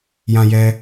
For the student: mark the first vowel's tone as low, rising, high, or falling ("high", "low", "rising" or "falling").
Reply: low